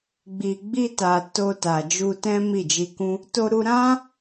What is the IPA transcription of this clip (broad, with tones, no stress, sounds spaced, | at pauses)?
ɡ͡b i˨ ɡ͡b i˧ t a˨ t o˧ t a˨ d͡ʒ u˧ t ɛ̃˦ m i˦˨ d͡ʒ i˧ k ũ˦ | t o˧ ɾ u˧ ɾ ã˦